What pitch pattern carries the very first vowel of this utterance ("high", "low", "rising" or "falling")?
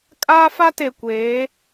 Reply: high